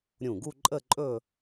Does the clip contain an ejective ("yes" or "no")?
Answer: yes